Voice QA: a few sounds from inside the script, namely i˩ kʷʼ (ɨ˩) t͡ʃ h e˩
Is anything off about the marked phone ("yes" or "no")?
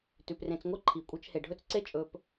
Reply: yes